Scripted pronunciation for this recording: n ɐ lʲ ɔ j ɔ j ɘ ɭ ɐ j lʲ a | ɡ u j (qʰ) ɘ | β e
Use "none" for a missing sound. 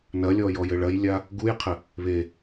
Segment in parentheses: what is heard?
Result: qʰ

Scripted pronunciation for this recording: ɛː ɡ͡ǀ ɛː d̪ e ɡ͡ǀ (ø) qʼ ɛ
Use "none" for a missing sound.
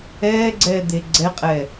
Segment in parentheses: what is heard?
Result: ɛ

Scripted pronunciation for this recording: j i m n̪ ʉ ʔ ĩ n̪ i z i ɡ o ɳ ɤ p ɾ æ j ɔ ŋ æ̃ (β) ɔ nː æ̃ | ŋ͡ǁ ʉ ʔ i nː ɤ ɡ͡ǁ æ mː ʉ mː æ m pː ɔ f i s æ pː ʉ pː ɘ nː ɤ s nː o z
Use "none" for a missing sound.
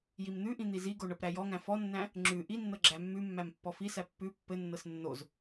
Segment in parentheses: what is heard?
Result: f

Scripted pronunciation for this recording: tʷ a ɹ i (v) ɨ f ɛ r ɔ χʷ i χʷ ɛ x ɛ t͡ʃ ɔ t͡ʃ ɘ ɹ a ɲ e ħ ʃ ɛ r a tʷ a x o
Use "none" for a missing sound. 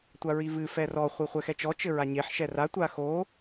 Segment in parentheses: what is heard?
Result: v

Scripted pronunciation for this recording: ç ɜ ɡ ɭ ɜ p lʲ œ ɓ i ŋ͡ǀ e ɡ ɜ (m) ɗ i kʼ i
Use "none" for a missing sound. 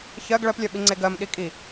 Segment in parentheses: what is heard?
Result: m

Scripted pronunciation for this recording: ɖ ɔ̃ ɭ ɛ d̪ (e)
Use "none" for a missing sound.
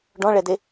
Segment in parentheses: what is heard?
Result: e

